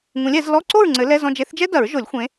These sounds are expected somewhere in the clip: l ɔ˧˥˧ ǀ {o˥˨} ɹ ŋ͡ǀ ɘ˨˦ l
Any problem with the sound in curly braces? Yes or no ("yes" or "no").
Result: no